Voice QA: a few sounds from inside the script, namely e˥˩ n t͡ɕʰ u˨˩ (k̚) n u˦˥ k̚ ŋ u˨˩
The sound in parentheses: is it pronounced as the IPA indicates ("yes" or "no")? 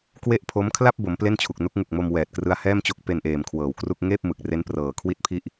yes